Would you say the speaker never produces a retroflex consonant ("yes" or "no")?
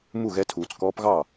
yes